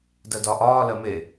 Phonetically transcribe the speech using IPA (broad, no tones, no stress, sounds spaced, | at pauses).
d ɜ d ɒ ʔ ɒː l ɜ m e